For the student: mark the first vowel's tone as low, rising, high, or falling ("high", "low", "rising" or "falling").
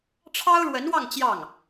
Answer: high